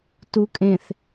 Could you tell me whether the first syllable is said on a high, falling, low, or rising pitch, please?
rising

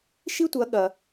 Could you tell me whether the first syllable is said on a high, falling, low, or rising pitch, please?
high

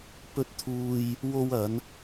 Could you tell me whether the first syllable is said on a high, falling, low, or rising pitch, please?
rising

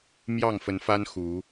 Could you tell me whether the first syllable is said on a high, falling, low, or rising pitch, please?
falling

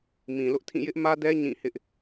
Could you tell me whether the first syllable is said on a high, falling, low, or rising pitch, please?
low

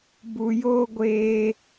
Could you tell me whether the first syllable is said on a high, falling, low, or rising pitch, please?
low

